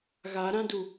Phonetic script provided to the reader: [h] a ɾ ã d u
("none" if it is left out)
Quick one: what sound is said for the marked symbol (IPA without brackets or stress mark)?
ɣ